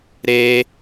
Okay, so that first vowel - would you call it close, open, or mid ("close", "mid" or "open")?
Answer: mid